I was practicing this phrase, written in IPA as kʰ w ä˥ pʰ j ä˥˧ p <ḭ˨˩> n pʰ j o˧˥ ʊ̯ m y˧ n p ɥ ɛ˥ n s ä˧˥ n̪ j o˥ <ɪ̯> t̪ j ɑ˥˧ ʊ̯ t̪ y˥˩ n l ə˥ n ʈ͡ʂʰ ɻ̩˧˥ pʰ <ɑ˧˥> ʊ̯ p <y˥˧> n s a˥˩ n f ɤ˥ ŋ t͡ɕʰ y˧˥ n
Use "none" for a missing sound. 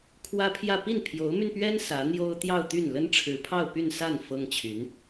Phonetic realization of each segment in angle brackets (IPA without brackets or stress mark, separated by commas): i˥˩, ʊ̯, ɑ˥˧, y˥˧